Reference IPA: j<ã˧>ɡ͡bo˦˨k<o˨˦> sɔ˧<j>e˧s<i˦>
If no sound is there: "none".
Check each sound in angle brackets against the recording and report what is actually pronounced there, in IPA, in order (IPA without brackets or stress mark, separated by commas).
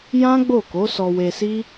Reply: ã˦, o˨˦, w, i˦